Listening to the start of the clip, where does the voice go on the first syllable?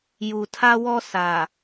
low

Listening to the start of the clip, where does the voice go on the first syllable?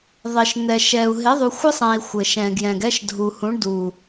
low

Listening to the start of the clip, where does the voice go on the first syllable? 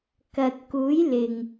low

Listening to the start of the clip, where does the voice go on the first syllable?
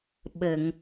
low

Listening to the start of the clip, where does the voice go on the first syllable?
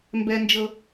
high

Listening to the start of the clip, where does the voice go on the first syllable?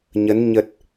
rising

